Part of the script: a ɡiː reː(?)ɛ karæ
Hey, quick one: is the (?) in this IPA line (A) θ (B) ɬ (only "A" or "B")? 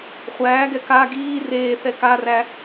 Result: A